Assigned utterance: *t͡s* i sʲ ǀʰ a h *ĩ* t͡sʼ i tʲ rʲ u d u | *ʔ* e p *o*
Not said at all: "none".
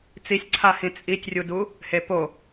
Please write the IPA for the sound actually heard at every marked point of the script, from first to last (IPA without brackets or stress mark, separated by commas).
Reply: t͡s, ĩ, h, o